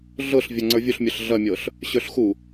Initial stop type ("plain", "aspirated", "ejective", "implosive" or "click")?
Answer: click